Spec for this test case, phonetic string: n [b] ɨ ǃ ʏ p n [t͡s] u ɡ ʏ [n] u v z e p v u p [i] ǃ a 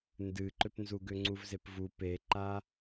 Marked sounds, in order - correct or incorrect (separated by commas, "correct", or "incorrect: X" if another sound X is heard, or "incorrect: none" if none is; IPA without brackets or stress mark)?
incorrect: d, incorrect: z, incorrect: ŋ͡ǀ, incorrect: e